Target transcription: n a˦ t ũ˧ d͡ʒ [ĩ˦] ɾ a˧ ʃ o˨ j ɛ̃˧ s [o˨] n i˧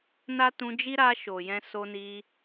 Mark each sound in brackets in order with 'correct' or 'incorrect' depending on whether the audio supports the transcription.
incorrect, incorrect

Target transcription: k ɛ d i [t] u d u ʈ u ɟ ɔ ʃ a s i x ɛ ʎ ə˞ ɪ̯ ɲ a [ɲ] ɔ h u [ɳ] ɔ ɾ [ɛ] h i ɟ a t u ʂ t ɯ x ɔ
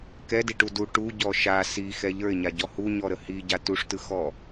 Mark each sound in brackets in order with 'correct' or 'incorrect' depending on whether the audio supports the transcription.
incorrect, incorrect, incorrect, incorrect

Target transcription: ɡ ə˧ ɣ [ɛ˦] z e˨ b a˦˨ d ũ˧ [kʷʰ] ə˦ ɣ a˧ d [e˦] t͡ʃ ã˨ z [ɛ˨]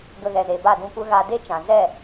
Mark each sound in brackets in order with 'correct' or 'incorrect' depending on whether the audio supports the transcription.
incorrect, incorrect, correct, incorrect

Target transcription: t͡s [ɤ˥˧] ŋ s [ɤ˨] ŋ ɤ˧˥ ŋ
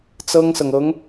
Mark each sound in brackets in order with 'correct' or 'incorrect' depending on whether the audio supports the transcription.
incorrect, correct

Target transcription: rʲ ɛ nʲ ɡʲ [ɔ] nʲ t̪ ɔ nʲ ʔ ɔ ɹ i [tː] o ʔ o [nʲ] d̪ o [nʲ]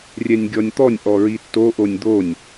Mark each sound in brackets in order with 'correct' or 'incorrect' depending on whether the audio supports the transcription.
correct, correct, correct, correct

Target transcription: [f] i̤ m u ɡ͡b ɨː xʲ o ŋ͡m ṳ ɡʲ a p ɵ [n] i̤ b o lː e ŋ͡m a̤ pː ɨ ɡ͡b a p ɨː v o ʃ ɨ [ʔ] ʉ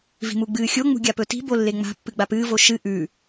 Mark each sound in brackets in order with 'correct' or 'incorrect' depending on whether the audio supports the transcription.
incorrect, incorrect, correct

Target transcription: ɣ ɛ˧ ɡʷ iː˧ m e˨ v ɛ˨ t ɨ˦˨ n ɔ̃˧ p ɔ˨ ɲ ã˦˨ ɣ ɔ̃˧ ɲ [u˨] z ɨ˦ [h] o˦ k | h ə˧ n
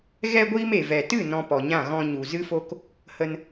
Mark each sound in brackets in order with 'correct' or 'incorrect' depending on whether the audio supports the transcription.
correct, incorrect

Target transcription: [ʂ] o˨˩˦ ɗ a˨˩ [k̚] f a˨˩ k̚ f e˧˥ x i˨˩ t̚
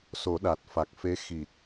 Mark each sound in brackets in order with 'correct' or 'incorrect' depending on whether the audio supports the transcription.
incorrect, incorrect

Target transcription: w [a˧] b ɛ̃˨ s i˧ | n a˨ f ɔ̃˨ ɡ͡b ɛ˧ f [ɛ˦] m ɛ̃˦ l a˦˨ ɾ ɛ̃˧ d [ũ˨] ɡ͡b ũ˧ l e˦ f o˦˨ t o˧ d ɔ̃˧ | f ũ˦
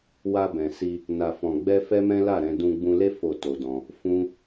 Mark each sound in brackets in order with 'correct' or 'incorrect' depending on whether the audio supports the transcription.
correct, correct, incorrect

